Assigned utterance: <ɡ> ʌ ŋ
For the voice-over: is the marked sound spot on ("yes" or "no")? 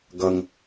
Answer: yes